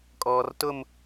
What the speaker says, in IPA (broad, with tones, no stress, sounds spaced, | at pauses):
kʼ ɔː˨ r t ʊ˦˨ m